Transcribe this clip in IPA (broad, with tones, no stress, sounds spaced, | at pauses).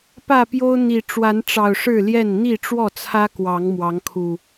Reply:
p ä˥˨ p j o˦ ʊ̯ n̪ i˨˩ ʈ͡ʂ w a˨˦ n ʈ͡ʂ ɑ˨˩ ʊ̯ ʂ ɻ̩˥˨ l j ɛ˥˨ n n̪ i˥˨ ʈ͡ʂ w ɔ˥˨ t͡sʰ ä˦ k w ɑ˨˦ ŋ m w ɑ˨˦ ŋ kʰ u˨˩